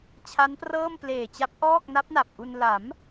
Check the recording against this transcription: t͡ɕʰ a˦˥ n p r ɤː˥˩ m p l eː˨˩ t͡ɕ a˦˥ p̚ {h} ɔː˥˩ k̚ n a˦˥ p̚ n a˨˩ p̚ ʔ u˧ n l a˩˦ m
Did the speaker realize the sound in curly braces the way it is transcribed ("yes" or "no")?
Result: no